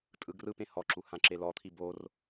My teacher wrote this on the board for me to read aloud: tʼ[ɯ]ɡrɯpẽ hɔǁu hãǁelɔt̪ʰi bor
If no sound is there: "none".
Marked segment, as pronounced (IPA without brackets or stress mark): ɯ